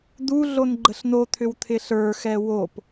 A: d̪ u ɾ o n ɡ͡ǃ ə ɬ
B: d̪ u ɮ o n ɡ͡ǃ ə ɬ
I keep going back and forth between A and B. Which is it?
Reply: B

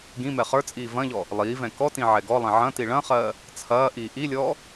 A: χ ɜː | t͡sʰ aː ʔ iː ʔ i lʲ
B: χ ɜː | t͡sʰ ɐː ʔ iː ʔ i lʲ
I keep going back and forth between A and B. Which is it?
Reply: B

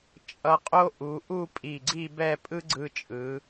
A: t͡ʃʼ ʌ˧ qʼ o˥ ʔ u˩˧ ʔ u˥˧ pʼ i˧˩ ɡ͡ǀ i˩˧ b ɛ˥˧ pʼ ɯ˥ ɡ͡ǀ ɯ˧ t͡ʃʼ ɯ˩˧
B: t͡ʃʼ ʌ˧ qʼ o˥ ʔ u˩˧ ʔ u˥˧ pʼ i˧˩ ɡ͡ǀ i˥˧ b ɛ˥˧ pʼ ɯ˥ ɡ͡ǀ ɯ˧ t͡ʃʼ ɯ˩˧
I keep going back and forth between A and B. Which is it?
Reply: B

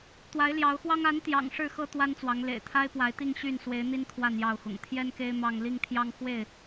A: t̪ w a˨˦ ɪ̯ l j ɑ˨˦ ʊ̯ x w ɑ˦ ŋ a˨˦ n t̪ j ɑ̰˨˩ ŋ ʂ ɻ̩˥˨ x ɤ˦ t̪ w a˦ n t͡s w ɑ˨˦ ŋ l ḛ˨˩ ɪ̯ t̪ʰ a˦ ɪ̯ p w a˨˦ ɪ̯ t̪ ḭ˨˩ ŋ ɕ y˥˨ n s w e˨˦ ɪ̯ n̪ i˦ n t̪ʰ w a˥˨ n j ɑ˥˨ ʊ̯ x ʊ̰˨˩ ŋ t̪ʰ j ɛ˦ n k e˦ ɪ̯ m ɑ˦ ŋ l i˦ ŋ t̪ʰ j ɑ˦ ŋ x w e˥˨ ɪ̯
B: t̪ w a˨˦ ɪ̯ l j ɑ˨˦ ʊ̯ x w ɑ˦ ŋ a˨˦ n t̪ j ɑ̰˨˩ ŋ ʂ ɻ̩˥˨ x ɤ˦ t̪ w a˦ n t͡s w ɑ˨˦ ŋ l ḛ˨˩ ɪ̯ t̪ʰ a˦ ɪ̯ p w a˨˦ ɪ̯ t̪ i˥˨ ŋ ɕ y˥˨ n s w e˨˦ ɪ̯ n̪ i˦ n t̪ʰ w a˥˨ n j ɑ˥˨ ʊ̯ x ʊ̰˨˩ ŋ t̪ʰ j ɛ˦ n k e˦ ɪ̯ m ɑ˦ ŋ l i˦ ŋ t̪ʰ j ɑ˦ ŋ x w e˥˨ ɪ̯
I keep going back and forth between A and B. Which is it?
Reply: B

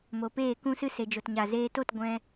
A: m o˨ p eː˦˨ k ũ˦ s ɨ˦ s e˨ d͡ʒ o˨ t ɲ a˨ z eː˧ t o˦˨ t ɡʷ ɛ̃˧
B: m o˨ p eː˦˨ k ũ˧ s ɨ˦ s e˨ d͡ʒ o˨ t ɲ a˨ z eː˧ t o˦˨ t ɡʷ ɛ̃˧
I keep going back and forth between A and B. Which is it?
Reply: A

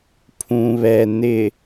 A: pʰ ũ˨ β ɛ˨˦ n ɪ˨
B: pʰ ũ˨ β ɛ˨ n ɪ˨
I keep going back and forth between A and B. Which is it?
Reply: B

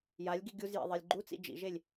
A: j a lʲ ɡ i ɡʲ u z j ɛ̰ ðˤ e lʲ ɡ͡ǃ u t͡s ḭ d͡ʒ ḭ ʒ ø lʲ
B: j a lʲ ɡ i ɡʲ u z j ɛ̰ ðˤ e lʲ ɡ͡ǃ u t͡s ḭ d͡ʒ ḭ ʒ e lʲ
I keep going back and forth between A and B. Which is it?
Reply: B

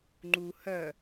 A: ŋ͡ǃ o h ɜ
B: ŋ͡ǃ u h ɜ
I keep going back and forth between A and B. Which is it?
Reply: B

